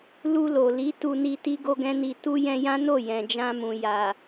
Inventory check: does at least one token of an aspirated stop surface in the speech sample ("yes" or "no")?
no